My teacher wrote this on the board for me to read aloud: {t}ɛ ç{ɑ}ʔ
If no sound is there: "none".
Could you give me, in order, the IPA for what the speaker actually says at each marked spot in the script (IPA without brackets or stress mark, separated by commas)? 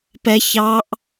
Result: p, ɑ